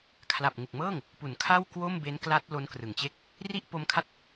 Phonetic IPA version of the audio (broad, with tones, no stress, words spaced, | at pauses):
kʰla˨˩p̚ŋu˨˩k̚mɤː˥˩ŋ | pu˩˦nkʰa˥˩w kwo˥˩mbe˦˥nkla˦˥t̚ lo˦˥nkrɯ˨˩ŋt͡ɕe˥˩k̚ | ri˥˩ʔpo˦˥mkʰa˥˩t̚